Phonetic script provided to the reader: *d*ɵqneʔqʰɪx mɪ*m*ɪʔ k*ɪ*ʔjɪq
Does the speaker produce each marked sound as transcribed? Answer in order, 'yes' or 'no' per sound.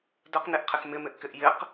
yes, yes, yes

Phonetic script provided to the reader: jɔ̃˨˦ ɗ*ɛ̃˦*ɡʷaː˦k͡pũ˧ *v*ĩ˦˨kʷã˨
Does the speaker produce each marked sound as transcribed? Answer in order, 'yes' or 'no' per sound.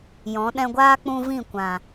no, yes

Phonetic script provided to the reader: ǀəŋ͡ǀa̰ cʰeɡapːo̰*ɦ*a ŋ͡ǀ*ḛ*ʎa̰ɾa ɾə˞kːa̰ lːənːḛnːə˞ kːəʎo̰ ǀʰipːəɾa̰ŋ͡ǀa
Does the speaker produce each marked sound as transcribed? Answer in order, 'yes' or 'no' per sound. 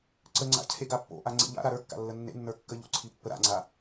no, yes

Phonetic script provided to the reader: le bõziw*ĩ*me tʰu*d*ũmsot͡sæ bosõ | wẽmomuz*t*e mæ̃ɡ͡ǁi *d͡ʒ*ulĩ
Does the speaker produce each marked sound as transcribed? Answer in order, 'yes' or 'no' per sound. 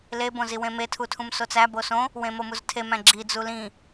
no, no, no, no

